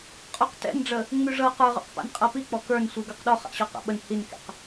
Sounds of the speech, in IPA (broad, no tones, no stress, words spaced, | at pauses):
qʼɔqtɛ̰nɖ͡ʐə | ŋ͡myʐɤ qə˞ʁɔ̰qpa̰n qʼɤpik͡pɔ kə˞nsʷi ɡə˞qɗɔ χa̰ɕɔqa̰ɓən hinkɛ̰q